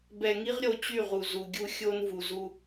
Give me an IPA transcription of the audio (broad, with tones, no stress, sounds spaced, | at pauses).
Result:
b ɛ˨ ŋ i˦ ʁ ɾʲ o˨ t͡ɕ y˦˨ ʁ u˨ z u˨ ɡʲ u˦ xʲ o˦ n v u˨ z u˦